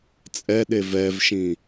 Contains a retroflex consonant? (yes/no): no